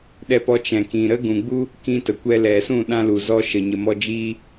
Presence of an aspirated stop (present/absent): absent